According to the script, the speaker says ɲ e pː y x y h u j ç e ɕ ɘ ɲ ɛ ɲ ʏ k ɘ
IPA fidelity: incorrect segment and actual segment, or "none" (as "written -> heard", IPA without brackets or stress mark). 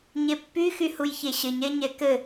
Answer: ʏ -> ɛ